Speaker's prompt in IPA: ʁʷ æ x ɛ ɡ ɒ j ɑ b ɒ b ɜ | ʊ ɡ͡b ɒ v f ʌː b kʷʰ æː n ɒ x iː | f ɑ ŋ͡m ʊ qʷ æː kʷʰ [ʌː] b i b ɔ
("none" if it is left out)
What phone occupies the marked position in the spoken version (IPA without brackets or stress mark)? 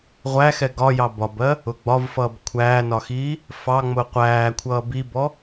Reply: ʌː